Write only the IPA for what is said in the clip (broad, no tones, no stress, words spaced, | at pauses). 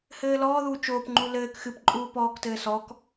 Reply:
hɘːlɔːðuː t͡ʃoːpŋ͡ǃu lɘːk xɨpǃʼuː pɔːktɘː sɔk